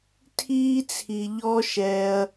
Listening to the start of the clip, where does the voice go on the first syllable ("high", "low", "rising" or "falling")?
high